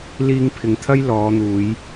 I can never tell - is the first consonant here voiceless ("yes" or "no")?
no